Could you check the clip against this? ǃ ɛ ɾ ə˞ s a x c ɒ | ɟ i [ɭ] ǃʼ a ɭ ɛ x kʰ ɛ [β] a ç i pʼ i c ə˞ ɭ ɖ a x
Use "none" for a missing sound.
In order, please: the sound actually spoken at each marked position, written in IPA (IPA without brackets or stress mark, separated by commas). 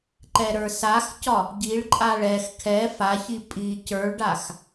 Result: ɭ, f